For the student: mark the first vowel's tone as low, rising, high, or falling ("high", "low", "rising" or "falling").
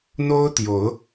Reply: high